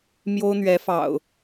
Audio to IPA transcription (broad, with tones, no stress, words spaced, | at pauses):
mjo˦ʊ̯n̪ɥɛ˨˦fɑ̰˨˩ʊ̯